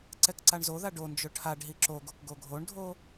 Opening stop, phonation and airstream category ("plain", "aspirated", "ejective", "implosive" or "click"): click